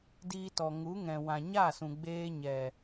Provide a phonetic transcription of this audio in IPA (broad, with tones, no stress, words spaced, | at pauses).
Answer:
diː˧tɔ˨ ŋu˨˦ŋɛ̃˨ wã˨ɲa˦˨sũ˨ ɡ͡beː˧ɲɛ˨